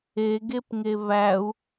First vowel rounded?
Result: no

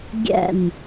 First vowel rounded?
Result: no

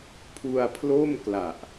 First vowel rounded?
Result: yes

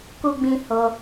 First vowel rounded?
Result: yes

